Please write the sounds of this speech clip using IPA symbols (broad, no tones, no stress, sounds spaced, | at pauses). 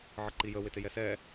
ʕ ə ǃ i j ə w ɪ t ɪ j ɛ s ɛ